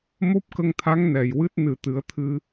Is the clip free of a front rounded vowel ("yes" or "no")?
yes